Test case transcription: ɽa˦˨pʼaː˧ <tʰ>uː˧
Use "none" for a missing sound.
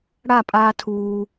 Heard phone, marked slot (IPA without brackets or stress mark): tʰ